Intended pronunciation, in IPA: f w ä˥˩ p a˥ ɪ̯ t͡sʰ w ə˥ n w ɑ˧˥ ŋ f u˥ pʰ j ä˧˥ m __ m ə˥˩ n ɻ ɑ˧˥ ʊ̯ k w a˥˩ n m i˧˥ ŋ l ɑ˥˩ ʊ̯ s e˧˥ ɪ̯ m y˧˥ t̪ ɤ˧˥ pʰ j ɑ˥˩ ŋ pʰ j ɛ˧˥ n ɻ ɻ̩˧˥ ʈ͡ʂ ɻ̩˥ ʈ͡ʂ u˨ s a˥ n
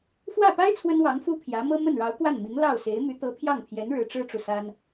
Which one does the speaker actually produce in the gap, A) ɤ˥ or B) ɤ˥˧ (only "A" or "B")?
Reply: A